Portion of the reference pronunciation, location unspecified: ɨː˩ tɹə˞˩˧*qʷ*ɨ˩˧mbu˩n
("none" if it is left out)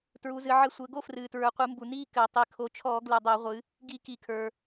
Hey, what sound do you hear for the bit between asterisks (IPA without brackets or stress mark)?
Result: qʷ